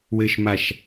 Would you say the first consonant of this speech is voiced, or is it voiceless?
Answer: voiced